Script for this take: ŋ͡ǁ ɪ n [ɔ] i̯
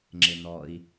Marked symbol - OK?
yes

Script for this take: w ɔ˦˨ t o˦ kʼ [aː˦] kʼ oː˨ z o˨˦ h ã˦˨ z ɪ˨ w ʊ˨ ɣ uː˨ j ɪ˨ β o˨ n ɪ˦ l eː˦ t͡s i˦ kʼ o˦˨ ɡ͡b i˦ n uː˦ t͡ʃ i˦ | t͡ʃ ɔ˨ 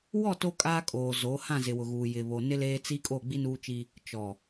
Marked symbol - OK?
yes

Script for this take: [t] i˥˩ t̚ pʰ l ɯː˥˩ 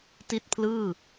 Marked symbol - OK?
yes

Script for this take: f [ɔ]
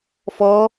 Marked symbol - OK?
yes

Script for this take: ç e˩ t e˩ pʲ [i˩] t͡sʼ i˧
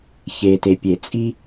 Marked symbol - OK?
no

